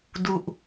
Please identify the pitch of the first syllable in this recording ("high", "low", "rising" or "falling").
low